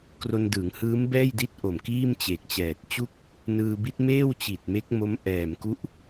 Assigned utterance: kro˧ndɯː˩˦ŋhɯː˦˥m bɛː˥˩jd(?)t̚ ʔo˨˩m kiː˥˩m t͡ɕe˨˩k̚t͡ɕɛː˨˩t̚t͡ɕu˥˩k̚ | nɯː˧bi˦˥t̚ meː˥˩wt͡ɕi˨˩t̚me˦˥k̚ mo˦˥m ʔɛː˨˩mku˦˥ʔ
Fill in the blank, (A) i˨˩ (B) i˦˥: B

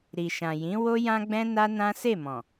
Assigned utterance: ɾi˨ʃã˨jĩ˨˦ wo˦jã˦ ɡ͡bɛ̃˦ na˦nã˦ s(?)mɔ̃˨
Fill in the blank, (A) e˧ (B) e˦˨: B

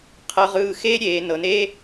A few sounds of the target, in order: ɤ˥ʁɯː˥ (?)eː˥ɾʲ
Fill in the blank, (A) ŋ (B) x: B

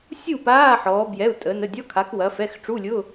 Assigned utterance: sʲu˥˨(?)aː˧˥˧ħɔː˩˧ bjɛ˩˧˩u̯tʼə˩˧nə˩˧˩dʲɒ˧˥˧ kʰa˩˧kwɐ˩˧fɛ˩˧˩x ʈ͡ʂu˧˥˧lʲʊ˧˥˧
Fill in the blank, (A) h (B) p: B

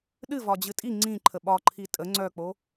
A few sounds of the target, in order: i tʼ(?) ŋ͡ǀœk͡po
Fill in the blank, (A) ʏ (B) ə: B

